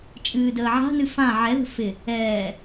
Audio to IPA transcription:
t͡ʃʼ ɨː d əː ʕ a̤ n ɨ f ã ʕ ɛ ð ə̤ f ɪ | ɛː

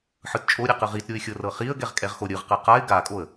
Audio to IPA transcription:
ħ ɯ t t͡ʃʼ o ɾʲ ɛ q ɯ ʁ i t ɾʲ o ɪ̯ xʲ ɤ r ɤ χ i ə̯ ɡ ɛ ʁ kʼ ɛ ʁ x o ɾʲ ɯ ʁ q ɯ q a ɪ̯ ɡ a kʼ o ə̯

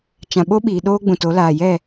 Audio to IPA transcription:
t͡ʃ ã˨ ɓ o˦ ɓ iː˨ ɗ oː˦ ɡ͡b ũ˨ t o˨˦ l aː˨ j ɛ˦˨

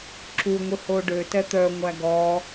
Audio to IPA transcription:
ǁ u ŋʷ i h o ɖ ø t ɛ t̪ œ ŋʷ æ ɡ ɔ

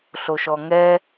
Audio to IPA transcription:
ɬ o ʃ ɔ ŋ ɛ

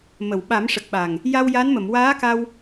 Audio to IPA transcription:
m ə˨˩˨ w ɓ a˨˩˦ m ʂ ə˨˩ k̚ ɓ a˨˩ ŋ | j a˧ w j a˧˥ n m ə˨˩˨ m w aː˧˥ k a˧ w

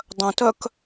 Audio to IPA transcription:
dˤ œ̃ t œ k

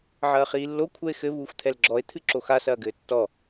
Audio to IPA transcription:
ʕ ɐː χ iː lː o kʷʰ ɛ e̯ x ɘ β uː xʷ t̪ʰ ɛ l ɡ͡ǁ ɔ e̯ t̪ʰ ɨ ǁ o x a s ɐː ɡ ɘː tː ɔ

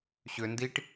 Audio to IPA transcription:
ɕ ʏ n d i ʈ

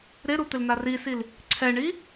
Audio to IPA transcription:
ɾ ɪ ɾ u t̪ ɪ l n a r i s i l | ǀʰ ɛ ɳ i

